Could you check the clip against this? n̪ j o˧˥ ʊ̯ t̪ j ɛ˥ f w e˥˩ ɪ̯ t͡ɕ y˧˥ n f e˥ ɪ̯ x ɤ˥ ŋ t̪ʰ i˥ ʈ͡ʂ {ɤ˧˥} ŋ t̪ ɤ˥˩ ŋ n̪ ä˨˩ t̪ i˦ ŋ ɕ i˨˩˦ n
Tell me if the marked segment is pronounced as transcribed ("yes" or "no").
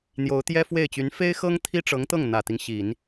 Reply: yes